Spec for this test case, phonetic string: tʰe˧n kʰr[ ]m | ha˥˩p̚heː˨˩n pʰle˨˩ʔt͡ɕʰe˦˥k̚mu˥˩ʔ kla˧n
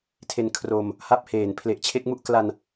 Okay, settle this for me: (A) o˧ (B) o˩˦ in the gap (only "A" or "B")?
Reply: A